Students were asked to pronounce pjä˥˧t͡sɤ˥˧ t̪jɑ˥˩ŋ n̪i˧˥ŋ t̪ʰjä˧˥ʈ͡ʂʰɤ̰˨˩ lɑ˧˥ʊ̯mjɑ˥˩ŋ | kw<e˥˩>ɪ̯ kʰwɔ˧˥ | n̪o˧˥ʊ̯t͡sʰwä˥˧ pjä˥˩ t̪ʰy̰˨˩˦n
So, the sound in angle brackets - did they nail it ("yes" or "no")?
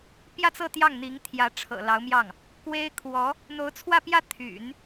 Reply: no